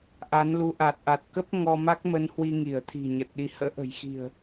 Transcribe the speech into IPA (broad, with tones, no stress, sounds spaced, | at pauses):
ʔ a˨˦ n l u˧ ʔ a˨˩ t̚ ʔ a˨˩ t̚ k ə˦˥ p̚ ŋ ɔ˧ m a˦˥ k̚ m ə˧ n h w i˧ ŋ i˧˩ ə̯ t̪ʰ i̤˨˩ ɲ ə˨˩ t̚ ɗ i˨˦ h ə̰ː˧˥ ʔ ə̤˨˩ j x i̤˨˩ ə̯